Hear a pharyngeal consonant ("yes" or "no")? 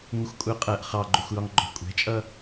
no